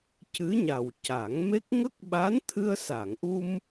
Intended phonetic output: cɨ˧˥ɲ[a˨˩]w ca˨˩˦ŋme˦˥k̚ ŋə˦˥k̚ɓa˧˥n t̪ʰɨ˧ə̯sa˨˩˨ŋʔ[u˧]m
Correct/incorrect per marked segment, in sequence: correct, correct

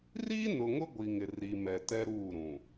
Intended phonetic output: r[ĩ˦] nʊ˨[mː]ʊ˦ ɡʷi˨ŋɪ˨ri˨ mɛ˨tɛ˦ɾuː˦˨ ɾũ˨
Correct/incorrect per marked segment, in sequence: incorrect, incorrect

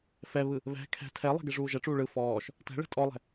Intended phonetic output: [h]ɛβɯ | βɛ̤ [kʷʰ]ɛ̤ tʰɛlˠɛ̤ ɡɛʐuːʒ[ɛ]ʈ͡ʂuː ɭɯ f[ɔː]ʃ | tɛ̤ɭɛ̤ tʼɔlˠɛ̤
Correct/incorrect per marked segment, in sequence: incorrect, incorrect, correct, correct

